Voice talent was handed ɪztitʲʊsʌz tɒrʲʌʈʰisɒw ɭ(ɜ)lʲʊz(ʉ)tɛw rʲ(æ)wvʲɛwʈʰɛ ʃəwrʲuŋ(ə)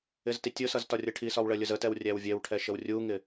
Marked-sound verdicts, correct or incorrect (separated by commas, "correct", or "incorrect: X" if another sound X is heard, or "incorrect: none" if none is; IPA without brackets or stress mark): correct, incorrect: ə, correct, incorrect: ɪ